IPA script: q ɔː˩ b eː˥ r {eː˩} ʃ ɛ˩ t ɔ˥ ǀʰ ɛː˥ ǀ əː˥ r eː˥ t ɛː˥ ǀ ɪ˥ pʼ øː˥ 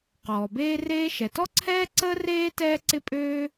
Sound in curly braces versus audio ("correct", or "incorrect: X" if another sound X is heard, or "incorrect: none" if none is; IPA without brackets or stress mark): incorrect: eː˥